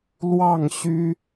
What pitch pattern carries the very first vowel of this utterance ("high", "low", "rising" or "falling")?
falling